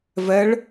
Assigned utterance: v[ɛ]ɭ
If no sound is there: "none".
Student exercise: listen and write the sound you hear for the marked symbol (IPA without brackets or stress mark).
ɛ